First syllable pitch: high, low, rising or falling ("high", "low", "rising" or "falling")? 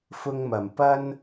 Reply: high